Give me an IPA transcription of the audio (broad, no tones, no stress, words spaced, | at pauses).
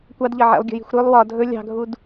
kʷɑdʎʌ ʕḛlˠɡʲə̤ji̤xʷ ɾɵlˠ wɒ dʱɵ lʲɑ̤ɡʱud